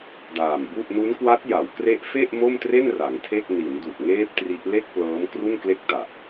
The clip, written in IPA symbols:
d aː˨˩ m b u˥˩ ʔ n u˦˥ n k w a˦˥ t̚ j a˩˦ w k r e˦˥ ʔ f e˥˩ ʔ m o˥˩ m t r e˥˩ n r a˩˦ ŋ tʰ e˥˩ k̚ n i˩˦ n d u˨˩ ʔ ŋ eː˦˥ p̚ t r i˦˥ ʔ l e˥˩ k̚ p l ɤː˦˥ m k r u˥˩ n k l e˥˩ k̚ t a˨˩ ʔ

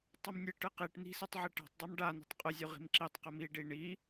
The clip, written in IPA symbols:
tˤ u m nʲ ɨ ʈ ɨ q i ʈ n i̤ s i tˤ ʕ i ʈ a̤ tˤ dˤ a m ɖ a n i̤ tˤ qʼ ɨ zʲ u ʁ i̤ m ǁ i tˤ q ɨ m i ɖ i ɳ i

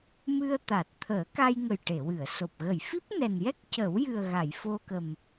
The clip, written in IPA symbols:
m ɨ˧ ə̯ t̪ a˨˩ t̚ t̪ʰ əː˨˩˦ k a˧ j ŋ ə˨˩ j ʈ e˨˩˨ w ɨ˨˩˨ ə̯ s o˨˩ p̚ ɣ ə˨˩˨ j f i˦˥ p̚ n ɛ˨˩ n j ɛ˦˥ k̚ c ə˨˩˦ w j ɨ˨˩ ə̯ ɣ a˨˩˨ j f o˧ k ə˨˩ m

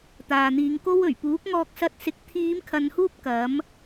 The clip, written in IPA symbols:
t̪ aː˨ n̪ iː˨˧ ŋ k o˥ w ɵ˨˩ ɥ p uː˨˥ k̚ ŋ ɔː˧ k̚ s ɐ˧ t̚ s ɪ˨ k̚ t̪ʰ iː˨˧ m kʰ ɐ˨ n h uː˧ p̚ k ɐ˨˥ m

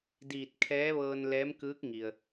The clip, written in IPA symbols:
d iː˧˩ t̚ kʰ ɛː˧˥ ʋ ɤː˧ n l ɛː˧˥ m k ɯː˧˥ k̚ ŋ i˩ ə̯

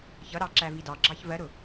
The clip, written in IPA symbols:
ç ʌ ɾ ɑ ǁ æ v i d ɑ ɡ͡ǁ ɑ ç v ɜ ɾ ʊ

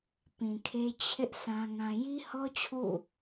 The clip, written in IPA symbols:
p ĩ˨ kʰ e˦ t͡ɕʰ ɪ˦ ʔ s ã˦ ŋ ã˦ j i˦ h ɔ˦ t͡ɕʰ ṵ˦˨

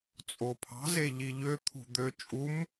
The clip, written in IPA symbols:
t͡sʼ o pʰ ɑ̤ z e ʎ i ʎ ø t̪ʰ ṳ d̪ ø t͡ʃʼ u m

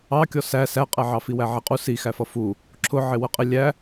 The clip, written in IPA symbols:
ɑ kʲ ɔ s æ s æ qʼ ɛ ʕ ɑ f i w æ ʕ i qʼ u s i x æ f ʌ f u | ǁʰ ʊ ʕ ɪ w ə qʼ ɪ lʲ æ

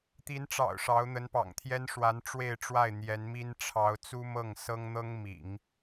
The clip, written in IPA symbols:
t̪ i˧˥ n ʈ͡ʂ ɑ̰˨˩ ʊ̯ ʂ ɑ˧˥ ʊ̯ n̪ ə˧˥ n p ɑ̰˨˩ ŋ t̪ʰ j ɛ˥ n ʂ w a˧˥ n ʈ͡ʂ w e˥˧ ɪ̯ ʈ͡ʂ w a˥˩ ɪ̯ n̪ j ɛ˧˥ n m i˥ n ʈ͡ʂʰ ɑ˧˥ ʊ̯ t͡s u˥ m ɤ˥˩ ŋ s ɤ˥ ŋ n̪ ɤ˥ ŋ m ḭ˨˩˦ ŋ

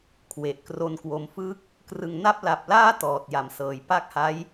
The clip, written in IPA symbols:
kʰ w e˨˩ ʔ k r o˦˥ n k w o˧ m f ɯ˦˥ k̚ | k r ɯ˨˩ ŋ n a˥˩ p̚ l a˨˩ p̚ l aː˥˩ t ɔː˨˩ t̚ j a˩˦ m s ɤː˩˦ j p a˦˥ k̚ h a˦˥ j

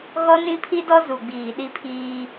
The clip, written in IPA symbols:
ɣ ɔ˦ n ĩ˦ pʰ i˦ d ɔ˦ z u˨ ɡ͡b iː˨ ɗ i˦ pʰ iː˦

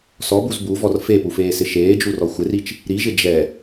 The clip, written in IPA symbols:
s ɔ b u z b u v ɔ r f e p u f eː s ɪ ʃ eː d͡ʒ u r ɔ xʷ ɪ r i t͡ʃ | ɾ i ʒ ɪ d͡ʒ ɛ

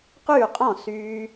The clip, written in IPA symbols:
q yː˦˨ qʼ ɔ̃˦˨ s yː˧

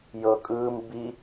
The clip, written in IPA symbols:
j ɤ kʼ ɯː m b i

